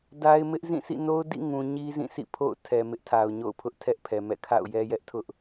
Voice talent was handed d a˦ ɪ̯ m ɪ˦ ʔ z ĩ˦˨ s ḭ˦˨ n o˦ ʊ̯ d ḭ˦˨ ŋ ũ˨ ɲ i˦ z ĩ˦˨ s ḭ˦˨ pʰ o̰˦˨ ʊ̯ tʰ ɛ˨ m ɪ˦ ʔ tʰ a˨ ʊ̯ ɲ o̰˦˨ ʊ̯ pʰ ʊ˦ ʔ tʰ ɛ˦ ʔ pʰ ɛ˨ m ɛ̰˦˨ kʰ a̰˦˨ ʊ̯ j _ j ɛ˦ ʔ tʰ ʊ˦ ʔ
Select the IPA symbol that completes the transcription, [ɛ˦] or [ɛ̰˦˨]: ɛ˦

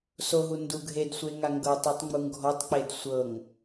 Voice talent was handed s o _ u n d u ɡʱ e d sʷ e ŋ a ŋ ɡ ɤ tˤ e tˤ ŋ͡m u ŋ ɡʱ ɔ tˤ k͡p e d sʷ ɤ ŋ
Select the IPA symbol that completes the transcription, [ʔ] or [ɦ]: ɦ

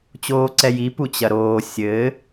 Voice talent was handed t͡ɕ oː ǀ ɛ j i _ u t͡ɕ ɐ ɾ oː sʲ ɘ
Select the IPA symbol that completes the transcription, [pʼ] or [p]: p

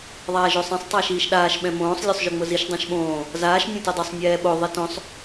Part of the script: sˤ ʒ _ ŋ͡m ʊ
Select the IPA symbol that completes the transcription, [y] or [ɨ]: y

